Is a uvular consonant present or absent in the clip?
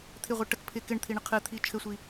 present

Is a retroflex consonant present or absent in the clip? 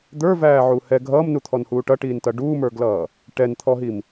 present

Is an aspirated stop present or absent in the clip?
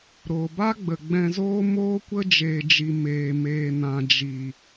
absent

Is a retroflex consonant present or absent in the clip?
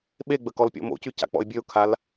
absent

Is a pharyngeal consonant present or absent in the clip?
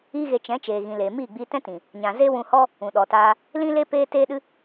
absent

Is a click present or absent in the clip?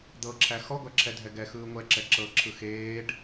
present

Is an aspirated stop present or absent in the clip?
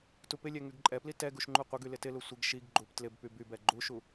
absent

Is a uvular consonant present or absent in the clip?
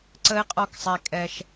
present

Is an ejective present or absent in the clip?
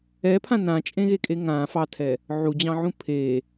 present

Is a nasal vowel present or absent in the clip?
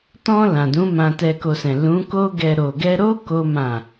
present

